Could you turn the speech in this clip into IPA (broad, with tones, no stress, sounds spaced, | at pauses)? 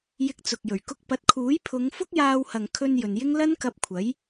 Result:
j ɪ˧ k̚ t͡s ʊ˨ k̚ j ɵ˨˩ ɥ k ʊ˧ k̚ p ɐ˨˥ t̚ kʰ uː˨˥ j pʰ ʊ˨˧ ŋ f ʊ˥ k̚ j aː˧ w h ɐ˨ ŋ kʰ ɵ˧ n j ɵ˨ n j ɪ˥ ŋ l ɐ˥ n k ɐ˧ p̚ kʷʰ ɐ˨˥ j